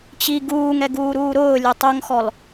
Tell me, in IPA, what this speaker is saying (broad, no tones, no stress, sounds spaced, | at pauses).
t͡ɕ i ɡ uː ŋ ɛ ɡ uː ɾ uː ɾ ʊː lʲ ʊ tˤ o ŋ x ɔ l